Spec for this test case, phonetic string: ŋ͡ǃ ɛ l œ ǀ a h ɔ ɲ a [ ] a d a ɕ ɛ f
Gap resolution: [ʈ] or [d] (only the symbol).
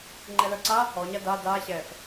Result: d